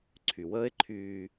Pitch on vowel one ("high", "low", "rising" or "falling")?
low